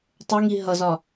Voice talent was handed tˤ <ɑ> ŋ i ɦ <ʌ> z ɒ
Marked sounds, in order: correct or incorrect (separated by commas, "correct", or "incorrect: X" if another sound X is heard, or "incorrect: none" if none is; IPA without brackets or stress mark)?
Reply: incorrect: ə, correct